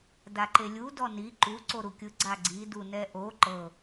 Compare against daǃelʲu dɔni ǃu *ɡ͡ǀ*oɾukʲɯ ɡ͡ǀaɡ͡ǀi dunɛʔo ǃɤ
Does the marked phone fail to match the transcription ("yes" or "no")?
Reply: yes